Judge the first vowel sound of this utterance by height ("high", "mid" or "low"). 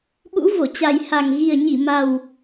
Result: high